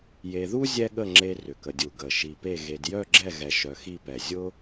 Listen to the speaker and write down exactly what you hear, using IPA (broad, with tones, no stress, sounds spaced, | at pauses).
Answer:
j e˧ ð u˥ zʲ ɛ˥ ɠ ə˥˧ ŋ͡ǁ e˥ r ʏ˧˩ k ə˧ dʲ u˧˩ ɡ ə˧˩ ʃ i˧ p e˥˧ ɣ e˧ d j œ˥˧ ɡ͡ǁ ɛ˥˧ ɣ ɛ˧ ʃ œ˧ x i˥˧ p ɛ˧˩ zʲ ʊ˥